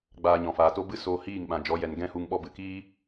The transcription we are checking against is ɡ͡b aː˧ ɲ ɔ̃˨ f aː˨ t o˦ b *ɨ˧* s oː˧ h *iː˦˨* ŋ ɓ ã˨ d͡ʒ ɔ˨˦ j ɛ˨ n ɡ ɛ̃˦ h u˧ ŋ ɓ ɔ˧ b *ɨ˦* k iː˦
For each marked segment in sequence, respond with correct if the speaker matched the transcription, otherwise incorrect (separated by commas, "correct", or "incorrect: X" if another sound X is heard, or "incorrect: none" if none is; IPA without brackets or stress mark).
incorrect: ɨ˦, correct, incorrect: ɨ˨